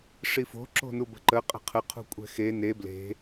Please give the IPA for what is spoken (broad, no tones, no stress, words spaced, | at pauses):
ʂifo̤ ǁo̤nubə̤ǃə qʼə̤qʰə qʰṳkʷʼɛ̤xe ne ble̤